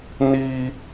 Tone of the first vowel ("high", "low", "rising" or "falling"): low